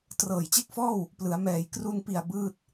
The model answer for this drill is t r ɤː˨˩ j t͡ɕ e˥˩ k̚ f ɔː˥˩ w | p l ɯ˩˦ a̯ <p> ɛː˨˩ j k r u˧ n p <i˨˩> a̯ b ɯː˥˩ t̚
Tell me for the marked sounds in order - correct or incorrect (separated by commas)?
incorrect, correct